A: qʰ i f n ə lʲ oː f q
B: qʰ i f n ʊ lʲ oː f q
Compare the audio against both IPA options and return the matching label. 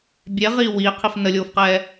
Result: A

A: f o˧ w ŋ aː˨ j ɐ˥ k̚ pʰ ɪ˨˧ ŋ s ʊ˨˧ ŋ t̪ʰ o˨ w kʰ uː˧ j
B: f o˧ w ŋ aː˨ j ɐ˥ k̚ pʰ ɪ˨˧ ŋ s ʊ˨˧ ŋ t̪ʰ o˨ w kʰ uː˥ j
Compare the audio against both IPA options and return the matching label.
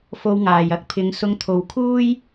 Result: B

